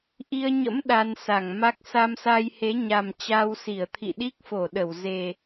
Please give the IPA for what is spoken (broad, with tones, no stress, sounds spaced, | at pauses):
ʔ i˧ ə̯ ɲ ə̰˧˥ m ɗ a˧ n s a˧˩ ŋ m a˦˥ k̚ s a˧ m s a˧ j h e˨˦ ɲ a˨˩ m t͡ɕ a˧ w s i˧˩ ə̯ t̪ʰ ḭ˧˨ ɗ i˦˥ k̚ f o˧˩ ɗ ə˧˩ w z e˨˩